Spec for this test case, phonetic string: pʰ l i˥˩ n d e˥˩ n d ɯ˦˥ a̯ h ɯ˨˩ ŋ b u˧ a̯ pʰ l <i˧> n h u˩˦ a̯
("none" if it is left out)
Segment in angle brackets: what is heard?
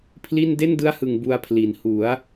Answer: i˩˦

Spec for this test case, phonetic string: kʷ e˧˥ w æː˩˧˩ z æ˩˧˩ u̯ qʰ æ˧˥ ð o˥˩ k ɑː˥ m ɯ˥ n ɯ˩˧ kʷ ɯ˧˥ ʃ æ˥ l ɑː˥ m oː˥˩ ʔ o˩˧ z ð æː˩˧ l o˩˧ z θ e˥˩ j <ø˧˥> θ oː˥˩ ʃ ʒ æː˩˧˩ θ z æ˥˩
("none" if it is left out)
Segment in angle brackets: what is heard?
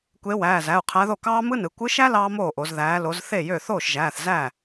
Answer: ø˥˩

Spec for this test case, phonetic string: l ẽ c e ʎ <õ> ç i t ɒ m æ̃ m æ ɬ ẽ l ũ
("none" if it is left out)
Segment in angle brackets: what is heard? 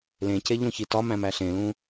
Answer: õ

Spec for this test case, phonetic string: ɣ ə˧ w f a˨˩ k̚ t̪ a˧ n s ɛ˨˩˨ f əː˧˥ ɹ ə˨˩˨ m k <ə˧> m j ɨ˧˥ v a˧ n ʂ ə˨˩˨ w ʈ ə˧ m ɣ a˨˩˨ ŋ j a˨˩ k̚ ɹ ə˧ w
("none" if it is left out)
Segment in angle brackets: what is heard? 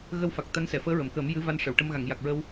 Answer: ə˨˩˦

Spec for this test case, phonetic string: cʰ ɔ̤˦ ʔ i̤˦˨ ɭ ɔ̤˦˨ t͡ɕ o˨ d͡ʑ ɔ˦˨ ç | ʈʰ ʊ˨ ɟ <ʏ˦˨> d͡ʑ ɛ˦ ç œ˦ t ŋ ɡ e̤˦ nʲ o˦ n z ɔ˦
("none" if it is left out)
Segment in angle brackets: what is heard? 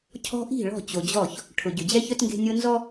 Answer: ʏ˨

